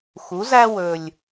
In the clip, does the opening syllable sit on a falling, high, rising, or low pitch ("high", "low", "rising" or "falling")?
rising